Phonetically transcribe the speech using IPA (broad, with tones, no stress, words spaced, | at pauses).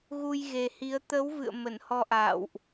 ɣu˧jɣe˨˩hi˨˦ə̯ t̪ə˨˦w vɨ̰˧˨ə̯ mə˧˩nhɔ˧ʔa̰ː˧˨wʔ